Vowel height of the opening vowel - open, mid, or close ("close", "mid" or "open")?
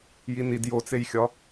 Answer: close